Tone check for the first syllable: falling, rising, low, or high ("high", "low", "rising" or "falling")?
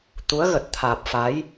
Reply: rising